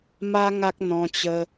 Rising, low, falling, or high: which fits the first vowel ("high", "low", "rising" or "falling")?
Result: high